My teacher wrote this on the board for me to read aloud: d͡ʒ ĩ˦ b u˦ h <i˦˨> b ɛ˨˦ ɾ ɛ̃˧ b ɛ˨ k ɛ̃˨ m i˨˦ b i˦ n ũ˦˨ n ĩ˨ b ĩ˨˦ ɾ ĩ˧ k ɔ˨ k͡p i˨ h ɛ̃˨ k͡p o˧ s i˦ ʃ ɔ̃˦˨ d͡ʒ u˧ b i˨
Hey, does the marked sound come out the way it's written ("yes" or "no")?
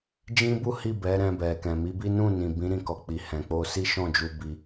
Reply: yes